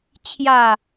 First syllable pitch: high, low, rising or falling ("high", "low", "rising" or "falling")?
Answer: low